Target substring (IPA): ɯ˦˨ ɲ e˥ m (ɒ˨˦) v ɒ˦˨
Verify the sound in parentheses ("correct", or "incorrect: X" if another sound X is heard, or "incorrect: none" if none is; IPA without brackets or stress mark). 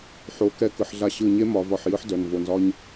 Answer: correct